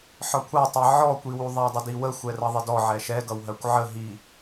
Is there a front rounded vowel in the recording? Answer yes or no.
no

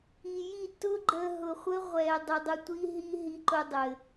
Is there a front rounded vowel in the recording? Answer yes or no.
no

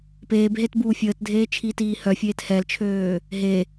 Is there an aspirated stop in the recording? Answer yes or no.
yes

